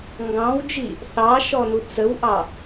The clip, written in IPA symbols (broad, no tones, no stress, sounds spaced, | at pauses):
ŋ ɡ ɑ̃ w d͡ʒ i | θ ɑ ʃ ɔ n u t͡s ə w ʔ ɑ